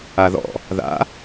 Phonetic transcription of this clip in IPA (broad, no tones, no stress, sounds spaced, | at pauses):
a ð ɔ̰ | ð a̰